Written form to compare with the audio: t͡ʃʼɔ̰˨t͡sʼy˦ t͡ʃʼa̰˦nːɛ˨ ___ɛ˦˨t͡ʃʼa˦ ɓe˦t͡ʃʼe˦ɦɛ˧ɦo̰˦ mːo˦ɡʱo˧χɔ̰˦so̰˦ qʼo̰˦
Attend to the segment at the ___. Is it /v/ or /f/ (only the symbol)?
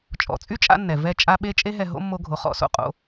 v